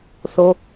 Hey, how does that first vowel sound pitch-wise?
high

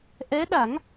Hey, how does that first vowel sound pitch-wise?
rising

